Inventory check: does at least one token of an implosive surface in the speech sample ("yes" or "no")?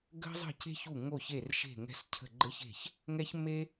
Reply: no